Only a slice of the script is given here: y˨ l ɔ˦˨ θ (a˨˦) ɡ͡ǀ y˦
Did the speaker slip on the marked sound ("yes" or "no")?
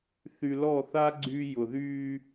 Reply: yes